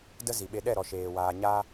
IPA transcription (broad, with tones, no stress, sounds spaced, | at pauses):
d ə˦ z i˨ ɓ e˧ ɗ ɛ˦˨ ɾ ɔ˨ ʃ eː˨ w aː˧ ɲ aː˦